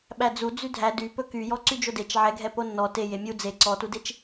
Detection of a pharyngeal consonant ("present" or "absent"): present